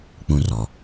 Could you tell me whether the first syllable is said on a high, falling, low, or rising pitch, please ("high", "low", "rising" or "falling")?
high